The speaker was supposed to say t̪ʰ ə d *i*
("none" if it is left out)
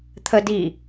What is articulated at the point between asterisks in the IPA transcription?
i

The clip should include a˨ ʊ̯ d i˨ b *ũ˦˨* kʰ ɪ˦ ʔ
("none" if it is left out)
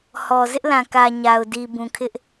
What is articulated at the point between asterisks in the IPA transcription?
ũ˨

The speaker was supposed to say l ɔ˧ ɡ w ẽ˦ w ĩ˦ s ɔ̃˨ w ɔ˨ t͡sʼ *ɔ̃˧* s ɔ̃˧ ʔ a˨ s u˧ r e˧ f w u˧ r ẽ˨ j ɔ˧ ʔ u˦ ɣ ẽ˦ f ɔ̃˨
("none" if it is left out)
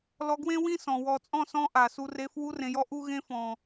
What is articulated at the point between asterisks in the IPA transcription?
ɔ̃˦˨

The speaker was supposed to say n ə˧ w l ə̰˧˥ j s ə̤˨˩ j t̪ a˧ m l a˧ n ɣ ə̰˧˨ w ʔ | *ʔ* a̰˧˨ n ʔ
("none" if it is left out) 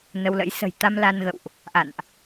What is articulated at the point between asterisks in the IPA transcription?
ʔ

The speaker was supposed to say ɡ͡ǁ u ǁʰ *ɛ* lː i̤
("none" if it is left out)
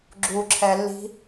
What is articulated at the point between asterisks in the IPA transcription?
ɛ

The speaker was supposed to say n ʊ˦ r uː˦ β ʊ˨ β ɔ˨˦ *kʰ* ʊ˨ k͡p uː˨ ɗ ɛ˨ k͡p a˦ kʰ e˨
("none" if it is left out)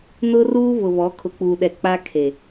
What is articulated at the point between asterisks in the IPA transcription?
kʰ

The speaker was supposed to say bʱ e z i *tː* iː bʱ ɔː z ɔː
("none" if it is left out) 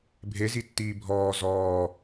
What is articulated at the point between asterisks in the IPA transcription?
tː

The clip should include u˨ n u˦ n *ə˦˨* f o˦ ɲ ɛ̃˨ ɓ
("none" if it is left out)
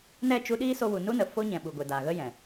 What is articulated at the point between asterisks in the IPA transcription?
ə˨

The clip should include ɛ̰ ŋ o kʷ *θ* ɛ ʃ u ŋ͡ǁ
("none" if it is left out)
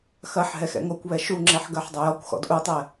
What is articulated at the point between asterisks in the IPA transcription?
β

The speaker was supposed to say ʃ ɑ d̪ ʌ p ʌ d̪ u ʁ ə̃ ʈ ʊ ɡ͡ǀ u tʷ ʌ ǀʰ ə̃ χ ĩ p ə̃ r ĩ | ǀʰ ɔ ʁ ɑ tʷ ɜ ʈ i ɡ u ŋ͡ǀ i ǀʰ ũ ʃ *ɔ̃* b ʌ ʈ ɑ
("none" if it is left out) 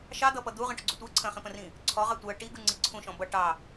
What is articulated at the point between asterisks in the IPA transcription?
ɔ̃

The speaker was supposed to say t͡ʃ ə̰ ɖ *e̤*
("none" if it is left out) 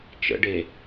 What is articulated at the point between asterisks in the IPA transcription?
e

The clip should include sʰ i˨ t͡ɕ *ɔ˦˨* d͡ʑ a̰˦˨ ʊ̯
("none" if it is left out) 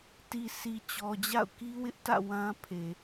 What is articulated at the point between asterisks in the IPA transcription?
ɔ˨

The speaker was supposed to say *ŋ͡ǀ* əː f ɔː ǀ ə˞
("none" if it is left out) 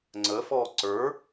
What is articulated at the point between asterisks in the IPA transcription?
ŋ͡ǀ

